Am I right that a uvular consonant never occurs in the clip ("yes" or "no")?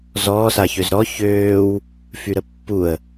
yes